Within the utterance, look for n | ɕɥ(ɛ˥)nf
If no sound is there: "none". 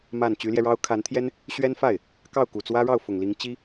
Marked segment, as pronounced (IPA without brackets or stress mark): ɛ˥